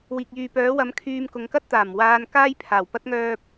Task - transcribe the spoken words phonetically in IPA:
wiː˨k̚jyː˨pœː˨˥wɐ˨˥m kʰyː˧mkʊ˨˧ŋkɐ˥t̚t̪aː˨˩m waː˧n kaː˥jpʰaː˨˩wpɐ˥t̚ ŋœː˥p̚

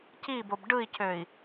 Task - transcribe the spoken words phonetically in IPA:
cibob ɖɯi̯cøi̯

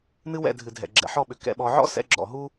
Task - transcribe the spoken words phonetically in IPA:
nɨ˦wɛ̰˦˨dʱɨ˨ dʱɛ̰˨ ɡ͡ǁɛ̰˨ħɔ˦˨ɓʏ˨ kɛ̰˧ɓɔ˧ ʕɔ̰˦sɛ̰˧ɡ͡ǁɔ̰˨ ɦu˦

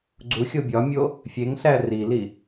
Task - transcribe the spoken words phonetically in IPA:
ɡ͡ǀuxʲo bʲɒmʲo | fʲeŋɬæ rili

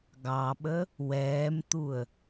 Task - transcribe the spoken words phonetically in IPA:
ɡɑɓə | wɛːmt̪uə̯

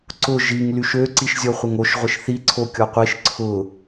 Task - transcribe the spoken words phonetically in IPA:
ǀʊ ʒiŋ lyʃø ǀiʃzʲɔχʷɪŋoʃ ʁʷɪʃθi ǀʰokʲɔqʷiʃ ǀʰʊ

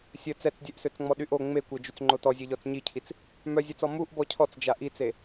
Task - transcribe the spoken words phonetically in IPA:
sʲə t͡sɛt͡sdʲɛʔsøt͡sŋ͡mɔ ɗyʔo ŋ͡mekʷɛd͡ʒyt͡s ŋ͡ǃotɔ zʲeʎɔt͡sɲicʰit͡s | mœzʲøt͡sɔ muʔ bɔcʰɔt͡sd͡ʒa ʔit͡se

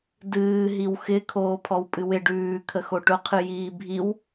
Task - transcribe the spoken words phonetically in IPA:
dɨː ɦiwxɪ kʰoːpʰɔwpʼɨwɪ ɖʉː kʰəxoʈʊ qʰɨjiːbʱiw

